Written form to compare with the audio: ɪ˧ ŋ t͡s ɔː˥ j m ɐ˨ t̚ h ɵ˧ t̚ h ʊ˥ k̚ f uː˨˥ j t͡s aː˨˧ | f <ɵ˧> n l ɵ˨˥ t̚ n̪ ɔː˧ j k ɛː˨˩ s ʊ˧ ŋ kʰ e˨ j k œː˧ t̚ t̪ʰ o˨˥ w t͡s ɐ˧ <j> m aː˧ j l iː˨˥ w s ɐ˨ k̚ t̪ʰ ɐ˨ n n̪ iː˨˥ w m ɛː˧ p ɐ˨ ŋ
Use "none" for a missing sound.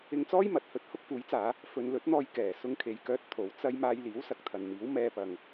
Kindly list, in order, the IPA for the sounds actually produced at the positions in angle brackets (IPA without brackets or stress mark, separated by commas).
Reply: ɵ˧, j